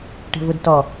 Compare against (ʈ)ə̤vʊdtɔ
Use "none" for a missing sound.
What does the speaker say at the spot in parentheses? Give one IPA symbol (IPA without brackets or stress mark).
ʈ